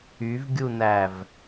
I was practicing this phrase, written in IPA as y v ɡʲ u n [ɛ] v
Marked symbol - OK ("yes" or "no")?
no